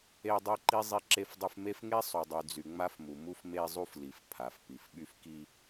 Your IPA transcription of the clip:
e˦ dˤ e˦ ǃ i˦ zˤ i˦ ǁ e˦ f dˤ y˦ f m e˦ f ŋ e˦ sˤ u˨ dˤ y˨ d͡z y˨ ŋ͡m a˦ f m u˨ m u˦ f m e˦ zˤ u˦ f l i˨˦ f pʰ a˨ f p i˨ f ɓ y˦ f k i˦

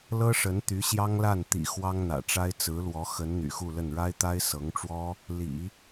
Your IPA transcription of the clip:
l ɤ˥ ʂ ə˧˥ n t̪ y˧˥ ɕ j ɑ˥ ŋ l a˥˩ n t̪ ḭ˨˩ x w ɑ˥ ŋ n̪ ä̰˨˩ ʈ͡ʂ a˥ ɪ̯ t͡s ɹ̩˧˥ l w ɔ˧˥ x ə˧˥ n n̪ y̰˨˩ x u˥˧ l ə˥˩ n ɻ a˥ ɪ̯ t̪ a˥ ɪ̯ s ɤ˧˥ ŋ ʈ͡ʂ w ɔ˥ | l ḭ˨˩˦

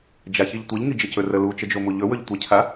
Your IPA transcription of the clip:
d͡ʒ a ç i ʎ tʷ i ʎ ŋ i d͡ʒ e c ɵ r ə l u t͡ʃ ə d͡ʒ o m u ʎ ɵ w ɵ ʎ tʷ e cʰ a

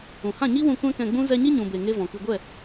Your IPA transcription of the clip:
ũ˨ h ã˦˨ ɲ i˦ w ũ˧ kʷ ɛ̃˦ k ɛ̃˧ ɡ͡b ũ˦ z ɛ˧ ɲ i˦ ɲ ũ˨ b e˨ ŋ e˦ v ɔ̃˨ k ɨ˧ ɡʷ ɛ˦˨

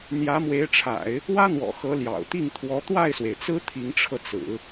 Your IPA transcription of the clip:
n̪ j ä˧˥ m w e˧˥ ɪ̯ ʈ͡ʂʰ a̰˨˩˦ ɪ̯ | w ä˥ n̪ w ɔ̰˨˩ x ɤ˧˥ l j ɑ̰˨˩ ʊ̯ t̪ i˥˩ ŋ t̪ʰ w ɔ˧˥ t̪ w a˥˩ ɪ̯ s w e˩ ɪ̯ t͡s ɹ̩˥ t̪ʰ i˧˥ ŋ ʈ͡ʂʰ ɤ˧ t͡s ɹ̩˨˩˦

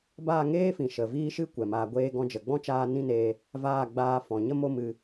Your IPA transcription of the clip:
b aː˦˨ ŋ eː˦ f ĩ˨ ʃ ə˨ v iː˦ ʃ ɨ˦ kʷ ɛ˨ m aː˧ ɡʷ eː˦ ɡ ɔ̃˧ d͡ʒ ə˨ ɡ͡b ɔ̃˦ t͡ʃ aː˧ n ĩ˦˨ n eː˧ | v aː˦˨ ɡ͡b aː˧ f ɔ̃˨ ɲ ə˦ m o˦ m ɨ˧

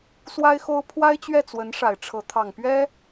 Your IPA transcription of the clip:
s w a˥ ɪ̯ x o˥ ʊ̯ pʰ w a˥ ɪ̯ t͡ɕ ɥ ɛ˥˩ t͡s w ə˧˥ n ʂ a˨˩ ɪ̯ ʈ͡ʂʰ ɤ˧˥ t̪ʰ ɑ˨˩ ŋ p ɥ ɛ˥

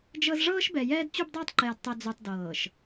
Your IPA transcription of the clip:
d͡ʒ ɤ˦ z ʐ ɤː˦ ʃ b ɛ˨ j ɛː˦ d t͡ɕ u˦ b dˤ ɤː˦ tˤ ǃ ɛː˨ d tˤ ɛ˨ d͡z u˨ tˤ d ɤː˨ ʃ

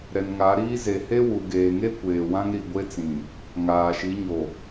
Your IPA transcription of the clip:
ɾ ɛ˨ n ŋ a˨˦ ɾ iː˦ z e˨ h e˦ w u˨ ɡ eː˨ ŋ e˦ kʷ eː˨ w ã˦ ŋ ɾ i˨ ɡʷ e˦ t͡s ĩ˨ | ŋ aː˨ ʃ i˨˦ ɲ o˨

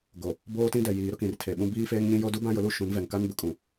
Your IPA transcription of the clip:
ɡ o˨ | b oː˦ t ĩ˦ d ɛ˨ j iː˨ ɾ ʊ˦ k ĩ˨ r tʰ e˨ ɓ ũ˦ b iː˦ f eː˦ ŋ ɲ ĩ˦ j o˦ d u˦ b ã˦ j ʊ˨˦ l u˦ ʃ ũ˨˦ n v ɛ˨ ŋ k a˦ n b ʊ˨ kʼ ũ˨

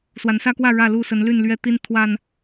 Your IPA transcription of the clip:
s w a˨˦ n s ä˦ k w ä˥˨ ɻ ä˥˨ l u˥˨ s ə˨˦ n l y˥˨ n l ɥ ɛ˥˨ t̪ i˦ n t̪ʰ w a˨˩ n

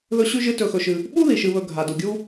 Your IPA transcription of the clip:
ð ɵ˦ ɕ ʉ˥ ʒ ɨ˦ t ɵ˨ x ɵ˨ ʃ ɨ˨ | ɓ u˥ ð i˩ ʃ ɨ˨ β ɵ˨ ɡʱ a˩ d u˩ ɡʲ u˦

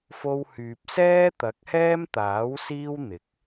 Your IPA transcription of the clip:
f o˧ w h yː˨ p̚ s ɛː˥ t̪ ɐ˨˥ k̚ h ɛː˥ m t̪ aː˨˥ w s iː˥ w n̪ ɪ˨˥ k̚

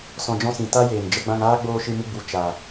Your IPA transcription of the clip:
s ɔ̃˧ d͡ʒ ɔ̃˦ s ĩ˨ t a˦ j eː˨ n d͡ʒ ə˧ ɡ͡b ã˧ ŋ aː˦ ɡ͡b oː˧ ʃ ɨ˧ m ɨ˧ ɡ͡b u˨ t͡ʃ a˨

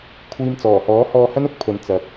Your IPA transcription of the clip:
kʷʰ iː˨ m t͡s ɔː˨˩ h ɔː˨˥ h ɔː˧ h ɐ˥ n ʊ˨˥ k̚ pʰ ɵ˨ n t͡s ɐ˨ k̚

